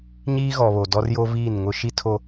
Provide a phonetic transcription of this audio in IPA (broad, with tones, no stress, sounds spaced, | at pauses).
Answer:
ɲ iː˦ ɣ ɔ˨ β o˨ d ɔ˦ r j o˦ v iː˦˨ n ŋ ʊ˦ ʃ i˦ tʰ o˦